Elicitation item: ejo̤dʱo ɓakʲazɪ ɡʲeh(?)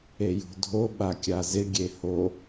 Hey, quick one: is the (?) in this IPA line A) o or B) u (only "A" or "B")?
A